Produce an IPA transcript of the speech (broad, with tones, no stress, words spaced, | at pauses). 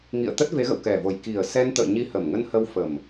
ŋḭ˧˨ə̯t̪ə˦˥t̚ve˨˦ɣə̰˧˨w kɛ˨˩vo˨˩j ki˨˩ə̯sɛ˧nt̪ə̰ː˧˨ ɲi˧hə˨˩mŋə˧n hə˧wfə˨˩m